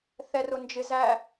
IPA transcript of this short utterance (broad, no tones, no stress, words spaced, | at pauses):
θɛrʊnd͡ʒɪ zæ